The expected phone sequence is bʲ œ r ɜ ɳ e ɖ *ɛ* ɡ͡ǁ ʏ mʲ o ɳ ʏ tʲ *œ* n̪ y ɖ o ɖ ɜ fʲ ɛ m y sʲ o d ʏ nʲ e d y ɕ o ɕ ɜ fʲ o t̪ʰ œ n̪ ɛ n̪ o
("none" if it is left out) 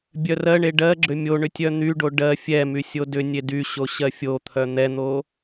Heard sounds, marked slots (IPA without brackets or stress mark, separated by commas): ɜ, œ